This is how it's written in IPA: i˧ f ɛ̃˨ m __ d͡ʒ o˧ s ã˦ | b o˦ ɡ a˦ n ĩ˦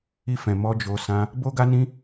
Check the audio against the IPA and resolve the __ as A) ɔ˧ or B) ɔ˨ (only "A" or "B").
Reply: A